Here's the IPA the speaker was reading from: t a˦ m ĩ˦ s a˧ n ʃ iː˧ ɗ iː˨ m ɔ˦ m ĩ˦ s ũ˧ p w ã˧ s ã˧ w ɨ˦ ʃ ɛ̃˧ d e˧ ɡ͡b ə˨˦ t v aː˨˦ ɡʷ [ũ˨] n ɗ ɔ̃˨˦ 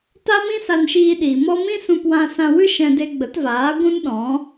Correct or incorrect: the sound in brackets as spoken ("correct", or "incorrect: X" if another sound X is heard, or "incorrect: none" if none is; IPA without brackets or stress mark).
incorrect: ũ˦